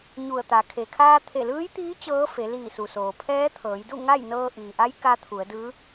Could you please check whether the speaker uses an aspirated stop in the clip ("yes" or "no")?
yes